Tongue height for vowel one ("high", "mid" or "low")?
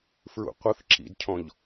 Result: high